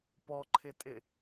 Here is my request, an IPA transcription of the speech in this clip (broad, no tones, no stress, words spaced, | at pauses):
pɔǃʰɪtʼɪ